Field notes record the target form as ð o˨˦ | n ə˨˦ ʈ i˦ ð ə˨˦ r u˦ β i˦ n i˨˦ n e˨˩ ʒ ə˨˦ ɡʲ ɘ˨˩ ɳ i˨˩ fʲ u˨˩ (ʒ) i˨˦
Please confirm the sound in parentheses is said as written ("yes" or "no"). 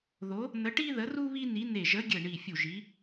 yes